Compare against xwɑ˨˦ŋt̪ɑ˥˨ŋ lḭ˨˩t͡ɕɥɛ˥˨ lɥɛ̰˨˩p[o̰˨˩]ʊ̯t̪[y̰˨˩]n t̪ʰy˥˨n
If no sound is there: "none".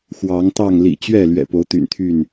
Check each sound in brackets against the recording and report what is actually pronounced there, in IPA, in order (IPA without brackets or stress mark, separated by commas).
o˨˦, y̰˨˩